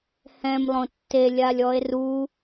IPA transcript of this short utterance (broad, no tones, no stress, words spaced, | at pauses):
hɛ̃m lˠõtːelʲalʲ ɔe̯ru